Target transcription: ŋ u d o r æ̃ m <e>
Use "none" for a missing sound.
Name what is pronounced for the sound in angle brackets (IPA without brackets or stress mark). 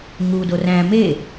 e